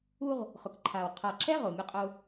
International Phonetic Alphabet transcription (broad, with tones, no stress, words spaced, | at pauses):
u˦ʁ | χʊ˨kǃʰaː˨w qʰa˨ǁɛ˦ ʁo˨mʲʊ˦qʼʊ˦